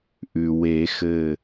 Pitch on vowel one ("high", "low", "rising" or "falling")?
low